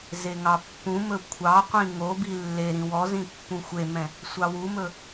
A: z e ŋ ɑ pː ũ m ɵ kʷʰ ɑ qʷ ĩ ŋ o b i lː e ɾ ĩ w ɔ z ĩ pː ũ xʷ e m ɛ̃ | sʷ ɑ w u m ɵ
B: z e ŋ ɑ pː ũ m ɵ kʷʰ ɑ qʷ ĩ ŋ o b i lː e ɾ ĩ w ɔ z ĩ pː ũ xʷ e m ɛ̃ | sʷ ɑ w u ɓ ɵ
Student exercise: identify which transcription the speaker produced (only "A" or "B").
A